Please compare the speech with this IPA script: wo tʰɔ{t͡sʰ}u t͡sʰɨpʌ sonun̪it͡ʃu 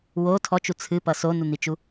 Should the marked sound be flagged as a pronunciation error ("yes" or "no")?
yes